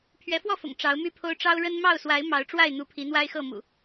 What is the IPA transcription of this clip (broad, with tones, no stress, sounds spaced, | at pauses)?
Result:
pʰ ɥ ɛ˨˦ f w ɔ˥˨ f ʊ̰˨˩ ŋ ʈ͡ʂ ɑ˨˦ ʊ̯ m y˦ pʰ o˦ ʊ̯ ʈ͡ʂ ɑ˦ ʊ̯ ɻ ə˦ n m ɑ˥˨ ʊ̯ s w a˨˦ ɪ̯ m ɑ˨˦ ʊ̯ ʈ͡ʂ w a˥˨ ɪ̯ n̪ u˨˦ pʰ i˨˦ n̪ w a˦ ɪ̯ x ɤ˥˨ m ṵ˨˩